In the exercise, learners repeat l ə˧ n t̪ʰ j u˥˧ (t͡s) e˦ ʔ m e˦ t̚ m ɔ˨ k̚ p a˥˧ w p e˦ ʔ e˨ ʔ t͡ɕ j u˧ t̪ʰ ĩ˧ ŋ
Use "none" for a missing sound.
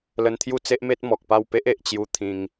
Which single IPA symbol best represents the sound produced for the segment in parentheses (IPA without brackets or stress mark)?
t͡s